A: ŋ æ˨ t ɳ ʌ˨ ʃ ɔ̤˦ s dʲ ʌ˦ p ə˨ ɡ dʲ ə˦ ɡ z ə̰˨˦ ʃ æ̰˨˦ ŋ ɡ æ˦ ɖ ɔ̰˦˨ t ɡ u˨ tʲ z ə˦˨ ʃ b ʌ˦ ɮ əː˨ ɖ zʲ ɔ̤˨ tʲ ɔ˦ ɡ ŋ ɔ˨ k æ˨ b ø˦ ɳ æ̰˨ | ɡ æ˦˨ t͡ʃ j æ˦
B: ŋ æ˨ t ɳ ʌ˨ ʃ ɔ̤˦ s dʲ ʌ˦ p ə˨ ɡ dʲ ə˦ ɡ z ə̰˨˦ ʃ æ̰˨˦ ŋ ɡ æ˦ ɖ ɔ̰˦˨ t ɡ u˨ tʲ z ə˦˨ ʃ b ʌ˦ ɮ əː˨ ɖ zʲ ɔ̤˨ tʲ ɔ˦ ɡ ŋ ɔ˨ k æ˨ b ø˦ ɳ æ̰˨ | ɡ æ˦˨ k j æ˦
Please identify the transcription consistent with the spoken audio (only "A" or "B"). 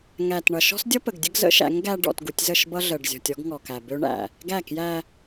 B